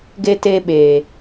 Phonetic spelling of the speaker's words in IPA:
ɡ e˧ t e˧ ɓ eː˨

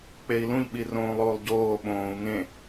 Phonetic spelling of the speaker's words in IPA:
k͡p e i̯ l ũ ʎ ɓ i r õː lˠ oː lˠ ɟ oː ɓ õː u̯ ŋ ẽ

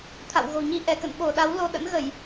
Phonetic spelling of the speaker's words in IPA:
t̪ʰ a̰˧˨ w ɣ o̤˨˩ ɲ i˧ ʔ ɛ˧˩ k ə̰˧˨ n ɓ o˧˩ ɗ a˨˦ w l o˧ ɗ ə̰˧˥ n ɣ ə˧˩˨ j

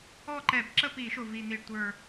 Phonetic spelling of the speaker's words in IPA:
ɔ˥˨ ǃ ɛ˧˩˧ b ǁ ə˥˨ p i˧˩˧ ʃ ʊ˨˩ v i˨˩ n̪ i˨˩ ɖ tʷ ə˞˨˩

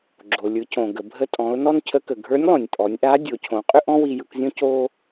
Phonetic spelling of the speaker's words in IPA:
ɡ͡ǁ o˩ lʲ ɯ˩˧ c õ˩ ɡ ə˩ bʱ ə˧ tʼ ɔ̃˩˧ ʊ̯ n ɔ˥ n cʰ ə˧˥ k ə˩ ɡʱ ə˞˧˥ nʲ lˠ õ˩ nʲ pʼ ɔ˩˧ nʲ ʔ a˧˥ dʲ o˩˧ cʰ õ˩˧ qʼ ʏ˥ ʔ ɔ̃˥ w i˧ j ɯ˧ k zʲ õ˥ c o˥

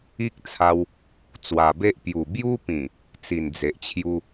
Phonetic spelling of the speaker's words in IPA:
i˦ k̚ t͡sʰ a˧ w | t͡s w a˨˩ b e˦ ʔ p j u˨˩ b j u˦ p ĩ˨˩ | t͡s i˨˩ n d͡z e˨ ʔ t͡ɕʰ j u˦

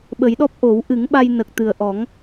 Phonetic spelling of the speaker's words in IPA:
ɓ ə˨˩˦ j ɗ ɔ˦˥ p̚ ʔ o˨˩˦ w ʔ ɨ˨˩˦ ŋ ɓ a˧ j n ə˨˩ k̚ t̪ ɨ˨˩ ə̯ ʔ ɔ˨˩˦ ŋ

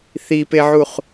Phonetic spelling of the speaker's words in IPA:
θ i p e ʕ u χ

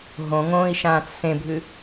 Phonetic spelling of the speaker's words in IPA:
ɦ õ ŋ õː i̯ ʃ ãː t͡s s ẽ bʱ ɨ

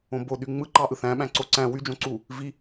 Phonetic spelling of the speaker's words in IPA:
õ b o ɗ y ŋ͡m ɯ ǃ ɑ ʔ ɯ θ æ̃ ɓ æ̃ ǀ o ǀ æ̃ w y d͡ʒ õ ǀ u | v i

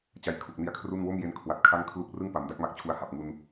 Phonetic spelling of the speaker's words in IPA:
t͡ɕ a˧ j kʰ u˨˩ k̚ n i˧ a̯ kʰ r u˥˩ n w o˥˩ m j e˧ n kʰ w a˨˩ t̚ kʰ a˥˩ ŋ kʰ l u˥˩ k̚ r ɯ˥˩ ŋ p a˩˦ m d a˥˩ k̚ m a˦˥ k̚ t͡ɕʰ u˧ a̯ h a˨˩ p̚ ŋ u˧ n

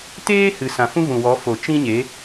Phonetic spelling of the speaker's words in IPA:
t eː˦ h ɨ˨ s ã˨ f ũ˦ v ũ˨ w ɔ˨˦ f o˨ t͡ʃ ĩ˦ ɲ e˨˦

